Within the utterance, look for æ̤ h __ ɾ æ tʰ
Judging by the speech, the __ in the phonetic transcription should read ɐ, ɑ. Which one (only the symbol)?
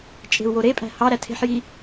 ɑ